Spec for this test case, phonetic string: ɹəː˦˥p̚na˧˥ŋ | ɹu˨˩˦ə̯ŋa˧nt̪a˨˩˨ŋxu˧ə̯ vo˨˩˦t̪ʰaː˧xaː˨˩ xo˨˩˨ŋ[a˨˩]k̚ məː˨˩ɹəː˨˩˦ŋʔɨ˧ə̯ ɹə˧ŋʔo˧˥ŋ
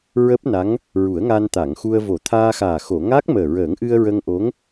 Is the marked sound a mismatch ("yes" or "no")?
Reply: yes